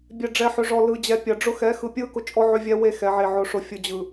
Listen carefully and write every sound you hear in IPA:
bʲ ɛ˨ ɖ͡ʐ ɛ˨ ħ ʏ˨ ʐ ɔ˨ l ɯ˨ d͡ʑ ɛ˨ pʲ ɐ˨ ɖ͡ʐ ʊ˦ x ɛ˨˦ x ɯ˨ pʲ ɯ˦ k ʊ˦ t͡ʃʼ ɔ˦ ʕ ʏ˦ vʲ ɛ˦ w e˦ x ɛ˨ ʕ e˨ ʕ ʊ˨ ʂ ʊ˨ fʲ ʊ˨ d͡ʑ ɯ˨

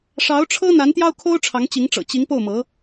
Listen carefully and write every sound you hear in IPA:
ʂ ɑ˧˥ ʊ̯ ʈ͡ʂʰ ɤ˥ n̪ a˧˥ n t̪ j ɑ˥ ʊ̯ kʰ o˥ ʊ̯ ʈ͡ʂʰ ɑ˧˥ ŋ t͡ɕ i˧˥ ŋ ʈ͡ʂ ɤ̰˨˩ t͡ɕ i˧˥ ŋ p o˥˩ ʊ̯ m ɤ˧˥

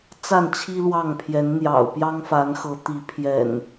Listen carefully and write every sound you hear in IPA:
t͡s a˥˨ n t͡ɕʰ i˦ l w ɑ˥˨ ŋ pʰ j ɛ˨˦ n n̪ j ɑ̰˨˩ ʊ̯ p j ɑ˦ ŋ f a˨˦ n x ɤ˨˦ t̪ i˨˦ pʰ j ɛ̰˨˩ n

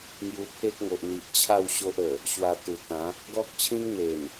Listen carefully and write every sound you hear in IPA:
ŋ j u˧ pʰ e˦ k̚ ŋ o˨ ʔ n̪ i˨ ʔ t͡ɕʰ a˥˧ w ɕ o˦ ʔ ə˨˩ | ɕ w a˧ t̪ u˨˩ t̪ ã˨˦ | ɡ ɔ˦ k̚ t͡ɕʰ ĩ˦ ŋ n̪ e˨˩ n

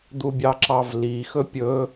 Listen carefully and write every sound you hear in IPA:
d̪ u bʲ ɑ ǁ ɑ v l i x ɵ pʲ ɵ

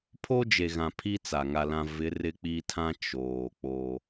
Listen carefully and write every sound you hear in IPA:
pʰ o˦ d͡ʒ e˨ ɣ ã˨ pʰ i˦ t͡s a˨ ŋ a˨ l ã˨ v ɪ˨˦ r ɪ˦ k͡p i˦ tʰ ã˦ t͡ʃ oː˨ k͡p o˦

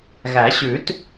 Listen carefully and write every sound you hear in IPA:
ɣ æ˨˩˦ ɕ ʉ˨˩˦ t

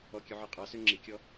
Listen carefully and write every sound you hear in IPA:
ɔ kʲ ʉ ʕ ɔ qʼ ɑ s ø ŋ͡ǁ i kʲ ɔ

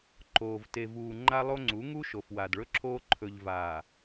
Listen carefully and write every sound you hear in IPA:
ǃ oː˨ v t e˨ v uː˨ ŋ͡ǃ a˦ lˠ o˦ ŋ͡ǀ u˨˦ ŋ u˦ ʃ o˨ f w a˨ d ɭ ɵ˦ ǁʰ oː˦ ǃʰ ɵ˨ ʎ v aː˨

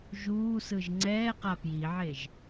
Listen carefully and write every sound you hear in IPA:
ʒ uː s ɯ ʒ ŋ͡ǀ ɛː q a p j i ʕ e ʒ

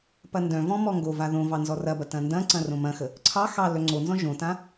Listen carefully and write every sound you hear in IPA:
p ɐ n d œ̃ v ɔ̃ m ɔ ŋ ɡ o v a ð õ v ɑ n z ɔ r ɐ b ɐ t ɐ̃ n d ɐ̃ ǀ ɐ̃ r õ m ɐ̃ x ə | ǀʰ ɑ x ɑ l œ ŋ͡ǀ o n z ɔ̃ ʒ õ t ã

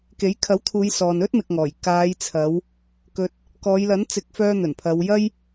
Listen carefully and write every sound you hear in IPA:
k e˨˥ j kʰ ɐ˨˥ w t̪ʰ uː˨˧ j s ɔː˨ n ɵ˥ t̚ m ɪ˨ k̚ ŋ ɔː˨˩ j k aː˨˧ j t͡sʰ ɐ˨˧ w | k ɵ˧ t̚ | k ɔː˨˧ j l ɐ˨˥ n t͡s ɪ˨˥ k̚ f œː˧ n̪ ɵ˨˩ n pʰ ɐ˨˧ w j ɐ˥ j

